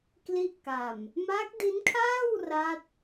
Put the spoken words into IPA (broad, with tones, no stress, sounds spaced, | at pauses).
k l i˦˥ ʔ k a˨˩ m | m a˦˥ k̚ d i˦˥ n kʰ aː˥˩ w r a˦˥ t̚